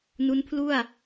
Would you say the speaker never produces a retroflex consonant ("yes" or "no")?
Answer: yes